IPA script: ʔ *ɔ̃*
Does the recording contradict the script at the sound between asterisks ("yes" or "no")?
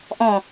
no